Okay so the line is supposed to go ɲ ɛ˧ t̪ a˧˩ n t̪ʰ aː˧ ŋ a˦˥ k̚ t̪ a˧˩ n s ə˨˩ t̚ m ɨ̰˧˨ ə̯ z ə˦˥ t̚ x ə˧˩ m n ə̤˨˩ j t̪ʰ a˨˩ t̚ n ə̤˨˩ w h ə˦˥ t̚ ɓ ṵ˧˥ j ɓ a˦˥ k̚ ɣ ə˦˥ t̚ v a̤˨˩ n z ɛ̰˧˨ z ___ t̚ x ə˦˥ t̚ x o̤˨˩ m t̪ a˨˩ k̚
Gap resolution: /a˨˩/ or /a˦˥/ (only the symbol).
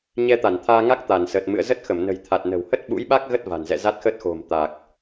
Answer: a˦˥